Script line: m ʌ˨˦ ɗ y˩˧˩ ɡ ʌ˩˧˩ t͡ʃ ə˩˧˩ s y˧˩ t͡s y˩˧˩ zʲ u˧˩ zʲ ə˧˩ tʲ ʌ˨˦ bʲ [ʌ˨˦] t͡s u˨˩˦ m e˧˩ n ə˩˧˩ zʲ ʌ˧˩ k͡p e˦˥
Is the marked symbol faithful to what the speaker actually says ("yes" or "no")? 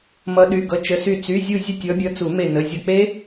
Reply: yes